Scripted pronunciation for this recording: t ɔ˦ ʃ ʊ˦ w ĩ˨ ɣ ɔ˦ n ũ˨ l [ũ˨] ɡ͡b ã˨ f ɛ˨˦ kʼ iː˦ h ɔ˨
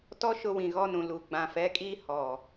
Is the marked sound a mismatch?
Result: yes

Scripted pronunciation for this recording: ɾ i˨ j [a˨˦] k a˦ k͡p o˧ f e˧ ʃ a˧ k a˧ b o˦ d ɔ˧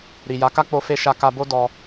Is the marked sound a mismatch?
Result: no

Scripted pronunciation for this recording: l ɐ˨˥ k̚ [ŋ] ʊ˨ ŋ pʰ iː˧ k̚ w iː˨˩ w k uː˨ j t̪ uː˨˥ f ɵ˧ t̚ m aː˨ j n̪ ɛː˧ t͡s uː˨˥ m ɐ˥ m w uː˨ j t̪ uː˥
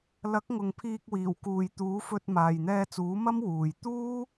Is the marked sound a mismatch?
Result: no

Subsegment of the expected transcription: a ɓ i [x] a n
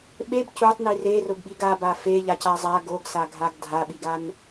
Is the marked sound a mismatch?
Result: yes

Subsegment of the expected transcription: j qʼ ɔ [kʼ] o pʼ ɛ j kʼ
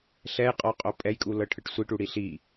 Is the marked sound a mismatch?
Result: yes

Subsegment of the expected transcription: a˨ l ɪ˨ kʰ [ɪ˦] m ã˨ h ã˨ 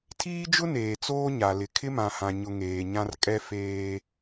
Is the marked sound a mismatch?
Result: no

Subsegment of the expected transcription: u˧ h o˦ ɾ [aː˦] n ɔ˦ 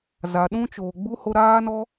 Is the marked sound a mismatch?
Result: no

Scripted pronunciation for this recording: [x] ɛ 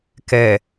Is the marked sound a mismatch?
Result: yes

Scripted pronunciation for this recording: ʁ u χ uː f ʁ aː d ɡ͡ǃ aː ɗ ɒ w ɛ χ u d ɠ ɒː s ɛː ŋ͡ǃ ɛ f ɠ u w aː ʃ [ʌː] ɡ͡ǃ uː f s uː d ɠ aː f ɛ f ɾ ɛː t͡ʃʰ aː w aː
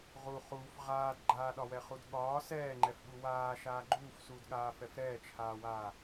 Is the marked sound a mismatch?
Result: yes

